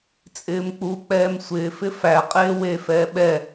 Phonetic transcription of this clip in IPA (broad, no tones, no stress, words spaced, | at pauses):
t͡sʼɪːmk͡pu k͡pɛːmsʷɪːfɪ fæ qʼeːwe fɛːɓɛ